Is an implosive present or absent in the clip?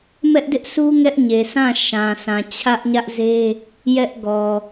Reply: absent